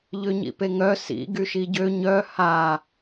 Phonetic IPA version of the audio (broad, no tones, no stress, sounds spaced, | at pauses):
ʎ ø ɲ ḭ p e ŋ œ s ḭ ɡ y ʃ i ɟ ø ɲ œ h a